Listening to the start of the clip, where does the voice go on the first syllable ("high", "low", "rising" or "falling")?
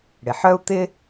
low